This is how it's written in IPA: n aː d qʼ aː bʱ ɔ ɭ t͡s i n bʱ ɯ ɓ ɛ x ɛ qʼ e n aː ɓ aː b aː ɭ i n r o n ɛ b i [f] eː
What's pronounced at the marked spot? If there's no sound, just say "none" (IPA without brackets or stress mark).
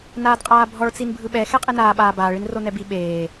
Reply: ɓ